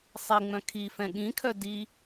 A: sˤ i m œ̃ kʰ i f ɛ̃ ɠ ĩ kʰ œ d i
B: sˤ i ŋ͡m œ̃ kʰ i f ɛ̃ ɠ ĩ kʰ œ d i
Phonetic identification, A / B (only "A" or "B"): B